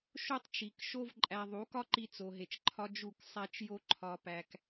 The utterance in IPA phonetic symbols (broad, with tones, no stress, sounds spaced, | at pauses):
ʃ o˦ tˤ t͡ʃ i˨ k ʃ o˦ v ǃʼ æ˧ ðˤ u˨˦ k ɒ˦ ǃ i˧ t͡s o˨ ɦ e˨ t͡ʃ ǃʰ ɒ˧ d͡ʒ u˦˨ k sˤ æ˦ t͡ʃ j o˦ ǃʰ ɒ˧ p æ˧ k